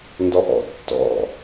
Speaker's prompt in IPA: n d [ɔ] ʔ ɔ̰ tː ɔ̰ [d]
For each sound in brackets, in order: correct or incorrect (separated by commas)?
correct, incorrect